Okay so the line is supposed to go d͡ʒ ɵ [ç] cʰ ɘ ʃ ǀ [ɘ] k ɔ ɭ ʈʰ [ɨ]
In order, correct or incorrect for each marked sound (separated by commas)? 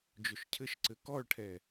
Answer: incorrect, correct, incorrect